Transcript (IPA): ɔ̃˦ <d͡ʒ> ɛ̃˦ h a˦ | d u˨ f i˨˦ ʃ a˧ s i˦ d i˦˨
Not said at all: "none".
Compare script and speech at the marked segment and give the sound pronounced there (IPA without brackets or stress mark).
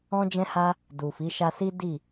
d͡ʒ